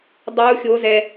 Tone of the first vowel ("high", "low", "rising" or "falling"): rising